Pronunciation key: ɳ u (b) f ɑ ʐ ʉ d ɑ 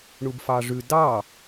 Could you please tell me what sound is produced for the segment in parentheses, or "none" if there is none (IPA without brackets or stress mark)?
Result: b